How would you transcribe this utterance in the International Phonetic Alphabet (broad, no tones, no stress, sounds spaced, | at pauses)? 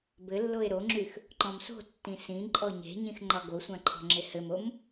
b ɘ lː o e̯ ɾ o ŋ͡ǁ y x | ǃ ɔ̃ m s o̤ tː ĩ s ĩ ǃʼ ɔ ɲ e̤ ɲ ĩ x ŋ͡ǃ ɒ ɡ o sʷ ã ǃʰ ɔ̤ ŋ͡ǁ e h ɘ m o m